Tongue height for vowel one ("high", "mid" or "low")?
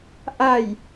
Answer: low